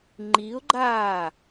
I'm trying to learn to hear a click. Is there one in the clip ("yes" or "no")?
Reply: yes